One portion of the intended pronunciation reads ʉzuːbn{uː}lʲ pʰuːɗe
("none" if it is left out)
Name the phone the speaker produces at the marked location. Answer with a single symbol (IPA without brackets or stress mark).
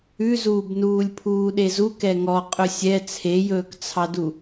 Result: uː